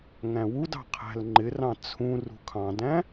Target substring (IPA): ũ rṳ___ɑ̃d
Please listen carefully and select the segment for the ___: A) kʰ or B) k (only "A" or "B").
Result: A